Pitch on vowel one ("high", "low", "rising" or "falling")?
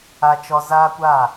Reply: high